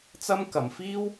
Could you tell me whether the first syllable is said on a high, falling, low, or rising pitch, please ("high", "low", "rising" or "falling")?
high